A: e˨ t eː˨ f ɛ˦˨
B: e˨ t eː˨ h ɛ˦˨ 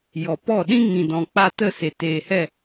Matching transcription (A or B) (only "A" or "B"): B